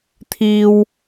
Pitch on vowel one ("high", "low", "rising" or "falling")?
high